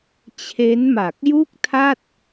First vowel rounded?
no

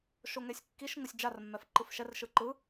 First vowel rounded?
yes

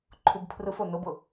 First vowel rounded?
yes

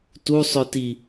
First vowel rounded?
yes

